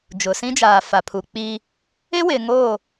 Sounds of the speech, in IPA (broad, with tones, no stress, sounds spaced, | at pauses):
d͡ʒ ʊ˨ s ĩ˦ d͡ʒ aː˨ f a˨ pʰ u˨ k͡p iː˦ | ɪ˦ w ɪ˨ ŋ oː˦˨